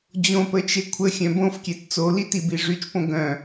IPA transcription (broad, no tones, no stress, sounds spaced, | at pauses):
d͡ʑ õ p ə t͡ʃ e kʷʰ ə xʲ œ̃ b õ f kʲ ɛ t t͡s o l i t i b i ʐ y t͡ʃ p õ ɡ œ̃